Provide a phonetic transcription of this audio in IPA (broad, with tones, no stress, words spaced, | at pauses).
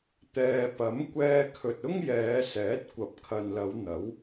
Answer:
t̪ɛː˨ pɐ˨˥mkʷɛː˧ kʰɵ˨t̚ ʊ˥ŋjɛː˨˧sɛː˨˥t̚ kʷɐ˨˥p̚kʰɐ˨nlɐ˨˧w n̪ɐ˨˥w